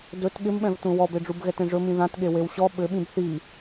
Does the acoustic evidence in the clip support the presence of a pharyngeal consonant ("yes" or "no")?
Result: no